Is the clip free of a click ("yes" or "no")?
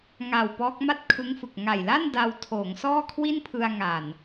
yes